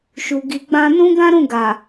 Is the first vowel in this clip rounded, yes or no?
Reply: yes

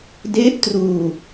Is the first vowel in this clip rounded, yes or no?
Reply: no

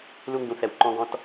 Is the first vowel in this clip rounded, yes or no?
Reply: yes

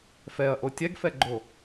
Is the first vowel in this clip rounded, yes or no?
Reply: no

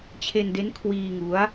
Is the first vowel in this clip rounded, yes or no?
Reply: no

